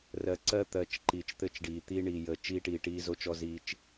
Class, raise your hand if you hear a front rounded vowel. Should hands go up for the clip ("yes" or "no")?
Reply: no